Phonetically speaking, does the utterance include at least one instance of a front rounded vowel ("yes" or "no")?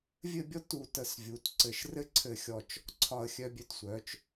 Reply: yes